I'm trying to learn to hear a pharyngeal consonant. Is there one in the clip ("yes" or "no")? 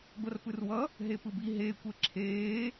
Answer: no